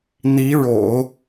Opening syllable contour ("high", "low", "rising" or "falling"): rising